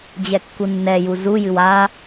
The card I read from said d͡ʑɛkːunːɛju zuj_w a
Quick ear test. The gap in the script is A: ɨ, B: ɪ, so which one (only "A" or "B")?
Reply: A